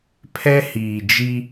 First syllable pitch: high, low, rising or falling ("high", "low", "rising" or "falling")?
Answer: high